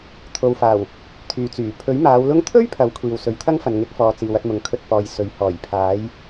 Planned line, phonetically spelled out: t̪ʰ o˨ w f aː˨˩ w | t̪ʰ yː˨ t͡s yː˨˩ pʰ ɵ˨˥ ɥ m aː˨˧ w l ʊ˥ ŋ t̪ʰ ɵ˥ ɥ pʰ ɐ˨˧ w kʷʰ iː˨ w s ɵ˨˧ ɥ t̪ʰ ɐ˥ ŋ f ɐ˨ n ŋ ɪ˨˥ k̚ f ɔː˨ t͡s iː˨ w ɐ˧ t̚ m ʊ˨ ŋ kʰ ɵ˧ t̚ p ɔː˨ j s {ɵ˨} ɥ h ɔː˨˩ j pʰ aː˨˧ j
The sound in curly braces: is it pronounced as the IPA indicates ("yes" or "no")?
yes